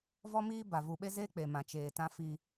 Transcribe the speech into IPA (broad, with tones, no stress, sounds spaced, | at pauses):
v ɔ˦ m iː˦ b a˨ v u˨ ɓ e˦ z e˦ k͡p e˨ m ã˨ t͡ʃ eː˨ t ã˦ f i˦